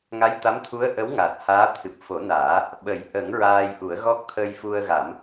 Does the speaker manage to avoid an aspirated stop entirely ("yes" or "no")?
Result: no